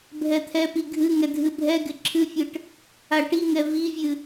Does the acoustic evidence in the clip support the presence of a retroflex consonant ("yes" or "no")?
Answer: yes